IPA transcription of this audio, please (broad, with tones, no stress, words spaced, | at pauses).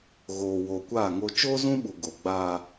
ɣoː˨woː˨kʷaː˦˨ŋo˦ t͡ʃoː˦zũ˦ɓu˨ ɡo˨ ɡ͡baː˦